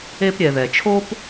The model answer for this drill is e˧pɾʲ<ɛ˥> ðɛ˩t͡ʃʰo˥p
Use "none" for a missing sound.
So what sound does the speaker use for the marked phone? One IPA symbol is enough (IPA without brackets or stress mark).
ɛ˩